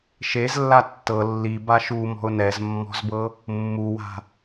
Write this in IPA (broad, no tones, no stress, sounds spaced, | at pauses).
ʃ e z lː a tː ɤ lː i b a ʃ u m ɔ̤ ʊ̯ n ɛ z mː ɔ̤ z b ɤ | mː u w a̤